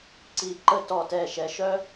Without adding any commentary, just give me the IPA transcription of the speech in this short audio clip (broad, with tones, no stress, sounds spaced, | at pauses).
ǀ i˧˩ ǃ ə˥ t ɔ˧˩ t ɛ˧˩ ʃ ɛ˩˧ ʃ œ˥